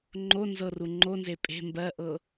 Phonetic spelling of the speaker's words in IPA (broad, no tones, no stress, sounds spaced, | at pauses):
ŋ͡ǃ o n z ɤ r u ŋ͡ǃ o n z e pʼ e̤ m b ɜ ʔ ɤ